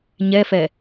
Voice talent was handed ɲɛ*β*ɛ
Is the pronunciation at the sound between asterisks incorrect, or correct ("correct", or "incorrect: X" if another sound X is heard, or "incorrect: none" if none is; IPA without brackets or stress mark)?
incorrect: f